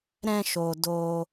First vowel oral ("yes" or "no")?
no